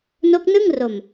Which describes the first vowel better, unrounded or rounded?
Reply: rounded